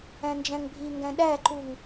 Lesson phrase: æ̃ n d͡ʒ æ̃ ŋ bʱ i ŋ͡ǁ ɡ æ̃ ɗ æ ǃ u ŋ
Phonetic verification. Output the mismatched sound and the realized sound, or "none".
ŋ͡ǁ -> ŋ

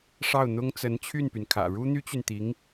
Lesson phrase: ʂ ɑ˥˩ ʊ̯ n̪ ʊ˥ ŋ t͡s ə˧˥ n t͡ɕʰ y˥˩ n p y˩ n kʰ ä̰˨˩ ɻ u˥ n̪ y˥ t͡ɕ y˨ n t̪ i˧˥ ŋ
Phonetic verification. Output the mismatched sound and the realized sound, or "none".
none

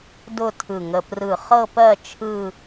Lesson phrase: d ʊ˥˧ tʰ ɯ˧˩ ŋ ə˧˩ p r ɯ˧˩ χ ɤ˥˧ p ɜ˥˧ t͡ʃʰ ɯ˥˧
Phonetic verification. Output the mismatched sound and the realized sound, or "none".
none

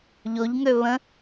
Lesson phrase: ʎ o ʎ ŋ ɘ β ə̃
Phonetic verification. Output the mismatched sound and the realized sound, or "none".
ɘ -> ø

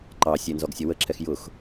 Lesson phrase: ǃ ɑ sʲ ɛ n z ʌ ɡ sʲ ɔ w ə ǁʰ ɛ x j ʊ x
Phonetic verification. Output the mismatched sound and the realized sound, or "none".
ʌ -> ɔ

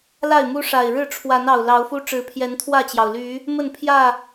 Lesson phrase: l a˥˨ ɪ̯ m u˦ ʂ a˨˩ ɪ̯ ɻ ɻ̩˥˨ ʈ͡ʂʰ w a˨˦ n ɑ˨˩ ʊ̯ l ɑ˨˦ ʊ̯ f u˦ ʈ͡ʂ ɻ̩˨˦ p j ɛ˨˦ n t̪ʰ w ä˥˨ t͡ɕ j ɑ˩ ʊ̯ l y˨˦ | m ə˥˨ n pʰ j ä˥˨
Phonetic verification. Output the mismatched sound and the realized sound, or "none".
p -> pʰ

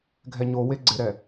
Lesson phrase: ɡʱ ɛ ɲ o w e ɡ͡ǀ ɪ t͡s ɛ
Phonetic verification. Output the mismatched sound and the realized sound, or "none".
t͡s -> ɾ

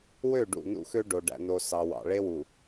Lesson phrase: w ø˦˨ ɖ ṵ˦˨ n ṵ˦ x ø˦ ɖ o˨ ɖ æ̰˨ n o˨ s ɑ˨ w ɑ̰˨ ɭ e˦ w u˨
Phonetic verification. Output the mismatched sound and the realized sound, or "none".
none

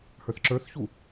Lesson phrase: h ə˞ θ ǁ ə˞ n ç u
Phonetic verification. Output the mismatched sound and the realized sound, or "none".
n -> θ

